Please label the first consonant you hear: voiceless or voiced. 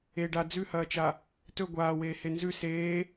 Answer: voiced